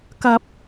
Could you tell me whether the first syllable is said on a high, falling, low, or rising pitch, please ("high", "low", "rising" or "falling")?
low